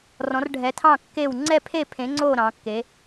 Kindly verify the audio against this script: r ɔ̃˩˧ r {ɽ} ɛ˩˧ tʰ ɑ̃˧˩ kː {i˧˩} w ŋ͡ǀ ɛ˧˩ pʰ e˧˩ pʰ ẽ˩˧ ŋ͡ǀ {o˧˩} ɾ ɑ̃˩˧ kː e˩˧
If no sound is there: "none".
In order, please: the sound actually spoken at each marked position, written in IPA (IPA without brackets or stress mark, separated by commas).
ɖʱ, e˧˩, o˧˩